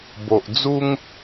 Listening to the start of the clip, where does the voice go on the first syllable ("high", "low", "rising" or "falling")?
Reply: low